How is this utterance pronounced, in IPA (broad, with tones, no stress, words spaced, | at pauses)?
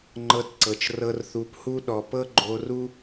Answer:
ŋ͡ǃɤ˧tǀɤ˨t͡ʃ rɤ˧rθu˨˦phu˦ ɗɔ˨ pɤ˦ɡ͡ǃo˧ru˦